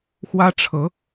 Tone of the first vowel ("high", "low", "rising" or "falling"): high